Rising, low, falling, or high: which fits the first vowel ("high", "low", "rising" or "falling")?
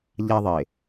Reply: high